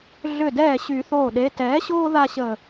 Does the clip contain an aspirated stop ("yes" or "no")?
no